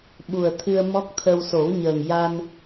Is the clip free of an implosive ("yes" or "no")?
no